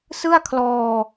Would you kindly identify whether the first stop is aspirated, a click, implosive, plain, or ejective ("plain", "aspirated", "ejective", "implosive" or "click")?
aspirated